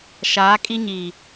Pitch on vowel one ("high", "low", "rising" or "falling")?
rising